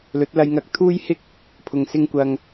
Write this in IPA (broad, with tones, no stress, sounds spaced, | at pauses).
l ɵ˨˥ t̚ l ɐ˧ j ŋ ɐ˧ k̚ t̪ʰ uː˥ j h ɪ˥ k̚ | pʰ ʊ˨˩ ŋ s ɪ˧ ŋ kʷ ɐ˨ ŋ